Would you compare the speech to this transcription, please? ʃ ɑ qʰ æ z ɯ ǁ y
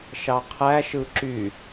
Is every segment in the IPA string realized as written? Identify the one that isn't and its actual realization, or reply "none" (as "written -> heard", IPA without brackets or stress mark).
z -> ʃ